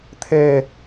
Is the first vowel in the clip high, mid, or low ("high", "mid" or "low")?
mid